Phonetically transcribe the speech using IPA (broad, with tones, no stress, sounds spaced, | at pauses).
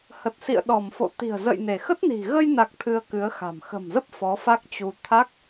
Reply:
h ə˨˩ t̚ s ḭ˧˨ ə̯ ɗ ɔ˧˩ m f o̰˧˨ t̪ i̤˨˩ ə̯ z ə̰˧˨ j n e˧˩ x ə˦˥ t̚ n i̤˨˩ ɣ ə˧ j n a˨˩ k̚ t̪ʰ ɨ˧ ə̯ k ɨ˨˦ ə̯ x a̤˨˩ m x ə̤˨˩ m z ə˦˥ p̚ f ɔ˨˦ f a˦˥ k̚ t͡ɕ u˧ t̪ʰ a˦˥ k̚